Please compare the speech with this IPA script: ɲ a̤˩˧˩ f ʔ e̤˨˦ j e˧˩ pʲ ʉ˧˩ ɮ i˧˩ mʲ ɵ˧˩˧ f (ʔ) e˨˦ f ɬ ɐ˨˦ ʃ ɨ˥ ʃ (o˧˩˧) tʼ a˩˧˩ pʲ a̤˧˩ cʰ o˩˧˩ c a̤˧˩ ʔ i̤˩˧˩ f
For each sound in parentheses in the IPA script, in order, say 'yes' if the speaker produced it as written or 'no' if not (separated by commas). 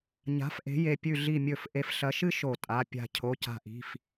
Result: yes, yes